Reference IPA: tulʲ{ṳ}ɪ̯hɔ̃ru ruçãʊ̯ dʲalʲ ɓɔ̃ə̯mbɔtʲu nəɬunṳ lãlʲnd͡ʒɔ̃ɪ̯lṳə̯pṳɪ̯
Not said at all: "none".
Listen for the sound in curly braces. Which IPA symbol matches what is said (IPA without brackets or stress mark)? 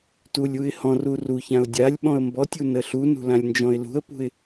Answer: u